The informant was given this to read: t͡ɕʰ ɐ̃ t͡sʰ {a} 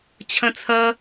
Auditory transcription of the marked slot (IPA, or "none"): ɐ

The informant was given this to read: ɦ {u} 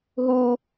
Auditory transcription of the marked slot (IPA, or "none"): u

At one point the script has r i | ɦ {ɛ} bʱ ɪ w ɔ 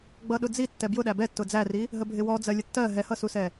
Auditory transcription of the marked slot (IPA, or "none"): ə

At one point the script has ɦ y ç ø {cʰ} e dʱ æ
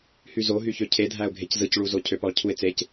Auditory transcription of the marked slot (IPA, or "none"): cʰ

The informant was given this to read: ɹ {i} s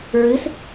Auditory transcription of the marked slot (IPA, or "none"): ɨ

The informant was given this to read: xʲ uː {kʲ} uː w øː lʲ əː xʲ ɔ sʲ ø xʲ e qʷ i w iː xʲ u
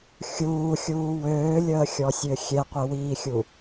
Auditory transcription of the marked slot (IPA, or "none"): xʲ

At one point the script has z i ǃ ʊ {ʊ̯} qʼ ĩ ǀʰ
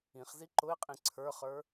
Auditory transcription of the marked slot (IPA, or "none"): ɪ̯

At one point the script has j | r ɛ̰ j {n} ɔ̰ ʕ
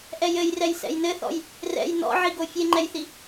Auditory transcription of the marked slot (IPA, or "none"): n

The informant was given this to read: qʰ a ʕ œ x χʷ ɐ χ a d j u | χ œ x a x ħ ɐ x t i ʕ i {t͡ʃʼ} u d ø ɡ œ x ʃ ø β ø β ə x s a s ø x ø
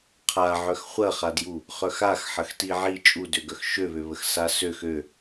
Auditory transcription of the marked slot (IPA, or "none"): t͡ʃʼ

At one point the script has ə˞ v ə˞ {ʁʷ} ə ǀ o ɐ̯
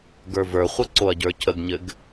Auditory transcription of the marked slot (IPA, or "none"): χʷ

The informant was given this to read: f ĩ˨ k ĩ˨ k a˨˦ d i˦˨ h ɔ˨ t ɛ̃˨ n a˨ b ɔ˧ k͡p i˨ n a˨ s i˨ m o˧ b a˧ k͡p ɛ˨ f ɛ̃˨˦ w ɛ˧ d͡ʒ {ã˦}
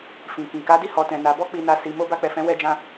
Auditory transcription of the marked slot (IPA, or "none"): ã˧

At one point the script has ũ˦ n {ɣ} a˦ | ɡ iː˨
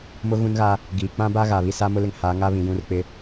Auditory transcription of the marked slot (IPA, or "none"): ɣ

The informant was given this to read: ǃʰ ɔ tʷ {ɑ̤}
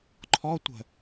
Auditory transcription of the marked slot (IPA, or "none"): ə̤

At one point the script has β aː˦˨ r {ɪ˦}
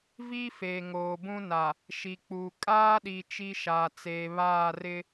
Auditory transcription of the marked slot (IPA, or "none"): ɪ˦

